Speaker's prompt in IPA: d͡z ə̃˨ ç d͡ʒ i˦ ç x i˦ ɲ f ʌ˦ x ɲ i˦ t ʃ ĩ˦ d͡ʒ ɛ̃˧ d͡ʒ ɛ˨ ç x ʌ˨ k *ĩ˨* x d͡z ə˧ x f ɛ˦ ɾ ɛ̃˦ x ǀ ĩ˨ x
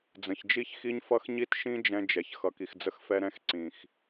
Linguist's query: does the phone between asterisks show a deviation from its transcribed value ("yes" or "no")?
yes